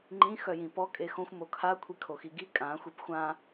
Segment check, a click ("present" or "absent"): present